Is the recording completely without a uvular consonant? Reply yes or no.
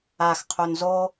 no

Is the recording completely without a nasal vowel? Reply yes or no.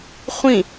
no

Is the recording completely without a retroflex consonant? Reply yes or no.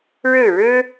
no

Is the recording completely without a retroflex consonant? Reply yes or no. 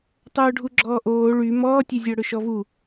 no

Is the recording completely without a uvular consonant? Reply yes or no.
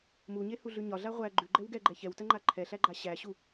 no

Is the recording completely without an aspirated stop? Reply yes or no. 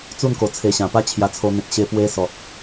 no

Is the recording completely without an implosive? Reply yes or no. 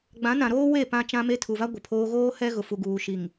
yes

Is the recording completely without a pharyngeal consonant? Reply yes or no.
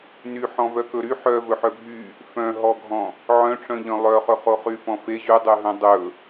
no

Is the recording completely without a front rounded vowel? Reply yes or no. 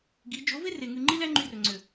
no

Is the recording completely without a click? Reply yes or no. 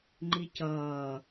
no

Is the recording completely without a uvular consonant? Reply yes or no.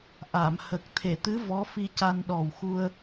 yes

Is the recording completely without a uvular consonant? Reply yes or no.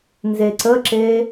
yes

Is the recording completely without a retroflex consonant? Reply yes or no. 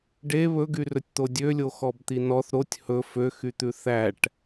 no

